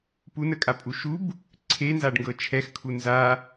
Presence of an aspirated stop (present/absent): present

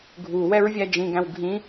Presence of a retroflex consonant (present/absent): absent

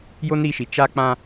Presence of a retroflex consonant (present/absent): absent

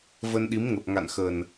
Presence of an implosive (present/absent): present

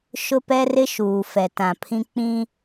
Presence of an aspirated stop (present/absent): present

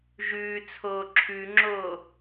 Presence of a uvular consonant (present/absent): absent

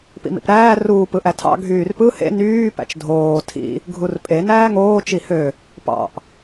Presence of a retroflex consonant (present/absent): absent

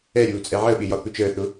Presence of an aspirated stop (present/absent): absent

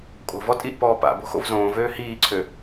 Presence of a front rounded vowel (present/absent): present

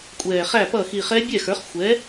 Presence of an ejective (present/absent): present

